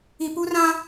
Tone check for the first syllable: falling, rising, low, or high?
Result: low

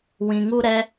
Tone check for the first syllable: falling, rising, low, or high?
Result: low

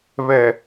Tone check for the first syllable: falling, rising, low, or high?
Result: low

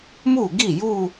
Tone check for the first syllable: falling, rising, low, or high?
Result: falling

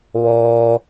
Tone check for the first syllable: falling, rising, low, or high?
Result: low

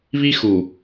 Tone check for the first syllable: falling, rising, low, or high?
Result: high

